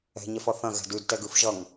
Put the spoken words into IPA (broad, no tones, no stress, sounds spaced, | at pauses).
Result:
ɛ̤ ɲ ɛ f ʌ θ ɐ̃ ɣ ɛ̤ d ʉ d t ɛ ɡ ʉ f ʒ ʌ ŋ